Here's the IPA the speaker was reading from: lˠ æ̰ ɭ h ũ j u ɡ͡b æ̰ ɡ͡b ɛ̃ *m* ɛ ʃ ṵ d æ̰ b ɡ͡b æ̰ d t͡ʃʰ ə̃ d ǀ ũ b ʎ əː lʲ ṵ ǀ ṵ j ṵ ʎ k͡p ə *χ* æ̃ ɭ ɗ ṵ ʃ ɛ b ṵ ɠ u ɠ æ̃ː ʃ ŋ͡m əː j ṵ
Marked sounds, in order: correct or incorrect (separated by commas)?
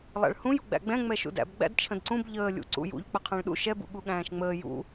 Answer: incorrect, incorrect